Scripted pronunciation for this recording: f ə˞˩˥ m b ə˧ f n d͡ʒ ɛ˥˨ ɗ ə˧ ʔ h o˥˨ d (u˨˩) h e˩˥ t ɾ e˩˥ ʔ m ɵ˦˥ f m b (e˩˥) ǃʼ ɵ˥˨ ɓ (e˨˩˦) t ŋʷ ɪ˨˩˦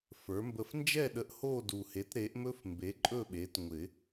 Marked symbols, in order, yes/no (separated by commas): yes, yes, no